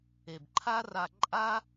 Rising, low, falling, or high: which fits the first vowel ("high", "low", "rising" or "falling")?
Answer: low